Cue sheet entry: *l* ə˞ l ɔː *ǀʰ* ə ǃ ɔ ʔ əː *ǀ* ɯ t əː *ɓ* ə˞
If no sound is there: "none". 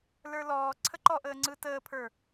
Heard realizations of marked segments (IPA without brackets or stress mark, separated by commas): l, ǀʰ, ŋ͡ǀ, pʰ